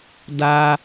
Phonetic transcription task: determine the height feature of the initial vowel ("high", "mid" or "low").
low